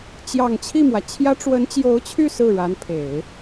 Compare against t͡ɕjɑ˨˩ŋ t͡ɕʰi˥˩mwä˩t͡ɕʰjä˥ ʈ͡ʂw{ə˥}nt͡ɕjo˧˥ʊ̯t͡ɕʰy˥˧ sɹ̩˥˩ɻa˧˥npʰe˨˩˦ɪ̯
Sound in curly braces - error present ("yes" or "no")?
yes